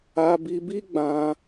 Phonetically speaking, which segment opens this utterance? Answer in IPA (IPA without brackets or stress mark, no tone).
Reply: a